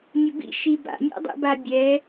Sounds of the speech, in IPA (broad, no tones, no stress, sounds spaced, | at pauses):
nʲ ʊ b ḭ ʃ i b a̰ nʲ a̰ dˤ ḛ b a bʲ ɛ